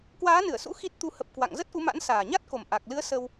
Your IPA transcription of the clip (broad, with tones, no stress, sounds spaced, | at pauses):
k w aː˨˦ n ɨ˧˩ ə̯ s ṵ˧˥ x i˦˥ t̚ t̪ u˧ h ə˨˩ p̚ k w a̰˧˨ ŋ z ə˦˥ t̚ ʔ u˨˦ m a̰˧˥ n s aː˨˩ ɲ a˦˥ t̚ k o˨˩ m ʔ a˨˩ k̚ l ɨ˨˦ ə̯ s ə˧ w